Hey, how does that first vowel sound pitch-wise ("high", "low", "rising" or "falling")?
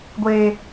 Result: low